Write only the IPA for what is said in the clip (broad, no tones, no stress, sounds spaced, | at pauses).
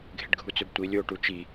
ɡʱ ɪ ɖ ɡʱ u t͡s ø b tʷ i lʲ o ʈ u t͡ʃ i